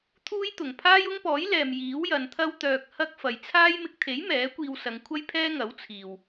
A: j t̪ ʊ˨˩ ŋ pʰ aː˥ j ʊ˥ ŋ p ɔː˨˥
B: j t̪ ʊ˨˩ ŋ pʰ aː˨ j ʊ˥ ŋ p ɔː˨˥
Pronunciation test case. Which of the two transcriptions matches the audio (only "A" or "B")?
A